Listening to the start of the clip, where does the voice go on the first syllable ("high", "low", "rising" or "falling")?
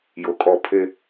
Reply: low